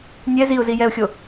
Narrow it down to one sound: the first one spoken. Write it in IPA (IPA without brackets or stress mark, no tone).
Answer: nʲ